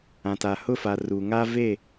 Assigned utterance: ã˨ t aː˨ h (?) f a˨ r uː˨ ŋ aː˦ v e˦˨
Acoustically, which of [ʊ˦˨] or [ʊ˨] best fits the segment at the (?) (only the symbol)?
ʊ˦˨